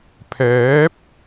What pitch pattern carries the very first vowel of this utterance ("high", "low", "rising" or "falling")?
rising